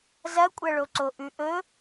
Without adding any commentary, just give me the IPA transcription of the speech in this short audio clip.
z ɐ kʷʼ ɐ ɭ o ǀ o ʔ ʉ ʔ ɵ

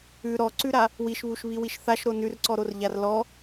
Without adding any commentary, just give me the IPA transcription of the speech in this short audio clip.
ʉ ɾ ɔ ǀ ʉ ɾ a | w i ʃ β u ʃ β i w i ʃ θ a ʃ ɾ o n ʉ r ǀ ɔ ɾ o r ʎ a r l ɔ

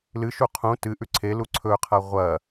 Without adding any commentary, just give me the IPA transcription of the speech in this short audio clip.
l ɨ ʃ u qʰ ũ t ɨ ʔ ʉ ǀʰ e l u ǀʰ ɵ qʰ a ʁʷ ɐ

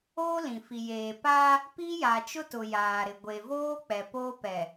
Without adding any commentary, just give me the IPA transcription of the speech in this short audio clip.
oː˦ l ĩ˨ f i˨ j eː˨ p a˦ | p i˦ j a˨ t͡ʃ ʊ˦ t ʊ˨ j aː˨ ɾ ɪ˨ ɡʷ e˨ v oː˦ k͡p ɛ˨ p oː˦ p ɛ˨

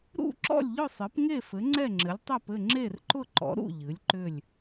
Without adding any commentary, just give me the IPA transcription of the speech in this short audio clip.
ɾ ṵ˥˨ ǁ ɔ̰˥˨ lʲ ʎ ʊ˥˨ sˤ ɨ˩˥ p ŋ e˥˨ f ɘ˩˥ ŋ͡ǀ ɛ˥˨ ŋ͡ǁ ɘ˩˥ lʲ tˤ ɛ˥˨ p ɘ˥˨ ŋ͡ǁ e˥˨ r ǃ ʊ˥˨ ǃ ɔ̰˩˥ ɾ ṵ˥˨ ʎ ɨ˩˥ lʲ ǃ ʏ˥˨ lʲ

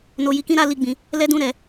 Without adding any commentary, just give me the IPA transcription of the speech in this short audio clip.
n o˨ j i˨ k ĩ˧ ɾ a˧ l i˨ ɡ͡b ĩ˨ | l ɛ˧ d ũ˧ ɾ ɛ˨

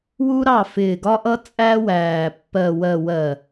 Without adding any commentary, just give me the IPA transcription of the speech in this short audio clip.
w u˦ ɾ ɑ˦˨ f ɪː˨ ɡ ɒ˦ ʔ ʌ˦ t͡sʼ æ˦ w æː˨ pː ɜ˨ w ɜ˨ w ɜ˨

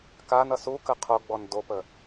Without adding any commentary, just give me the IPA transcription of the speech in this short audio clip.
k a n ʌ s u k ə qʰ o ɡ͡b ɔ n d o p ə

